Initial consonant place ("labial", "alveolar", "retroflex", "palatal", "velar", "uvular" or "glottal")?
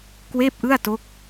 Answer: velar